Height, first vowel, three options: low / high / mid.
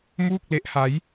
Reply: high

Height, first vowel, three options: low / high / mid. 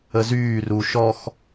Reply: mid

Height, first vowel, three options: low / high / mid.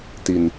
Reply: high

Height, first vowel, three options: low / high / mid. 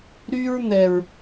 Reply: high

